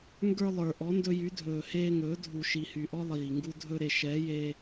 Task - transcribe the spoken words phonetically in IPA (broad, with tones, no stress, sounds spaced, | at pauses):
ŋ ɡ ə˞˧ lˠ ə˞˨ ʔ ɔ˨˦ n d ɵ˧ j y˨˦ dʱ ɵː˨ h eː˧ ŋ ɵː˨˦ dʱ u˨ ʃ i˨ h y˨ ʔ ɔ˦ lˠ iː˨ ŋ ɡ u˧ dʱ ɵ˧ ɾ e˨ ʃ ɛ˨˦ j e˧